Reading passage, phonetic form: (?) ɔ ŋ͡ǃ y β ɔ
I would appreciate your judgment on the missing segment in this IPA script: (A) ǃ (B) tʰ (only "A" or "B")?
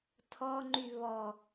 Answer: B